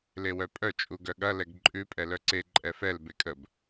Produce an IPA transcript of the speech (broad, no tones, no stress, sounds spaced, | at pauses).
l e w œ pʼ œ t͡ʃʼ u ɡ œ ɠ ɐ l ɛ ɡ ǃʼ ʉ pʼ ɛ l œ ǀ e ǃʼ ɛ f ɛ l b e kʼ ə b